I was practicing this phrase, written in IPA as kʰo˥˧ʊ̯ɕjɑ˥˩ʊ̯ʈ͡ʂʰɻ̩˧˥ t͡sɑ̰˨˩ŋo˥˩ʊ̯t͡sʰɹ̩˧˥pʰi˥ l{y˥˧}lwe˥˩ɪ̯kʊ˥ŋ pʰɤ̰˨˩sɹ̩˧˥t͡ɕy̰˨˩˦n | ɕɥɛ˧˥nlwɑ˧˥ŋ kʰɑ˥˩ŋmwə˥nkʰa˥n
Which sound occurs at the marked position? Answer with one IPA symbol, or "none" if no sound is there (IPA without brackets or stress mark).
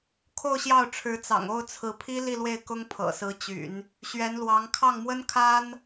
i˥˧